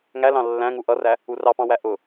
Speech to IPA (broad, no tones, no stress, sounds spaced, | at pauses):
ŋ æ l ɑ̃ lː æ̃ ŋ u ʔ ʌ r æ | u r ɑ p ɑ̃ w æ ʔ ʊ